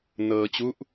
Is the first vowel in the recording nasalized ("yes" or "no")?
no